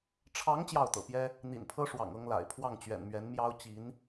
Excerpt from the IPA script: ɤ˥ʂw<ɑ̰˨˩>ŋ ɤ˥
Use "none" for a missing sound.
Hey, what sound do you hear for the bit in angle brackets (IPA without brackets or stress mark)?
ɑ̰˨˩